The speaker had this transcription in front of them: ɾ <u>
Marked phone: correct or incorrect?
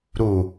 correct